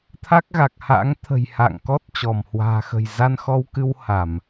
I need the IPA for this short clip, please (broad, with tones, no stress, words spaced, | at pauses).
t̪ʰa˦˥k̚ɣa˨˩k̚ha̰ː˧˥ŋ t̪ʰə̤˨˩j ha̰ː˧˨ŋkɔ˦˥t̚ t͡ɕɔ˧˩mhwa̤ː˨˩xə̤˨˩j za˧nxɔ˧wkɨ˧w ha˧˩˨m